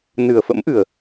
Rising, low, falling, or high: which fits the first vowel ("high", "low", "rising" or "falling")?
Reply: low